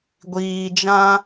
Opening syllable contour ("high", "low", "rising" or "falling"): low